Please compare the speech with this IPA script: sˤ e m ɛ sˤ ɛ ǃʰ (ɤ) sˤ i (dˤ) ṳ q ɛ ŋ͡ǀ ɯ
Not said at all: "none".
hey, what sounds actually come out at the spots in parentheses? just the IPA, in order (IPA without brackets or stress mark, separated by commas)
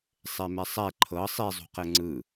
ɤ, zˤ